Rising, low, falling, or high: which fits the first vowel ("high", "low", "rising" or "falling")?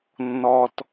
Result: low